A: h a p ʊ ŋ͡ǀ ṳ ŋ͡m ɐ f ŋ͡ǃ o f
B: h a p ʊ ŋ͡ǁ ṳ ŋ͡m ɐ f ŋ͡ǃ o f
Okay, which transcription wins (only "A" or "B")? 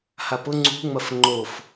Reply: A